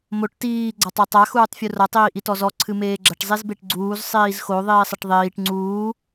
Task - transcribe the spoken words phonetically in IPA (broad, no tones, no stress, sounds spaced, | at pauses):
m o ʈ t iː ɡ͡ǀ a tˤ o tˤ a x uː tˤ fʲ u r ɐ tˤ iː ʔ i t ɔ z ɔ ǀʰ ɨ m eː ɡ͡ǁ ɐ ʈ zˤ i z b e ʈ ɡ͡ǀ uː z sˤ iː z x o ðˤ iː sˤ ɐ ʈ ðˤ iː ʈ ŋ͡ǀ uː